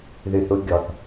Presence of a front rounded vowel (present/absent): present